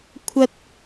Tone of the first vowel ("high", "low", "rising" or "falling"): high